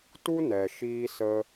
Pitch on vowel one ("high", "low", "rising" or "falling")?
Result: high